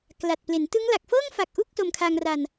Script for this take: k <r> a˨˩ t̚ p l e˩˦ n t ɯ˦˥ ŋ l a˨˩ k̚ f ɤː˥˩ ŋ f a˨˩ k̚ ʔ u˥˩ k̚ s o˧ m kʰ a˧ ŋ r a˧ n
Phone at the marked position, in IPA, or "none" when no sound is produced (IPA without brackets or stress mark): l